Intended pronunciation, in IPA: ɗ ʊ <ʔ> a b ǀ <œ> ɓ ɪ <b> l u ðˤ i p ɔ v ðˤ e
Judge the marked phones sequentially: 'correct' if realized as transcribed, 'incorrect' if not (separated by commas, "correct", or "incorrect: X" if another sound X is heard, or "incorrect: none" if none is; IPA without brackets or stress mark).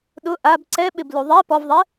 correct, incorrect: ɛ, correct